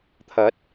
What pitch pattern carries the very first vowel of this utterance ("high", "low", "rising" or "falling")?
rising